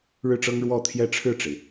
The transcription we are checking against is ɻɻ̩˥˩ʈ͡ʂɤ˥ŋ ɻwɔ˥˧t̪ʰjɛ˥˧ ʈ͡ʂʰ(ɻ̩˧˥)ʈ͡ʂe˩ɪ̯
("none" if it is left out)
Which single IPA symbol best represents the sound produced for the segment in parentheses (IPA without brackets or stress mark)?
ɻ̩˥˩